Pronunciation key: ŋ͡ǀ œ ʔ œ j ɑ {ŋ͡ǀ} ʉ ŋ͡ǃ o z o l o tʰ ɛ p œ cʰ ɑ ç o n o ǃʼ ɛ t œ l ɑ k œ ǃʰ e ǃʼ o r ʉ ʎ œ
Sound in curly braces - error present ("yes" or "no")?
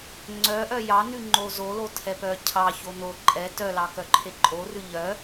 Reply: yes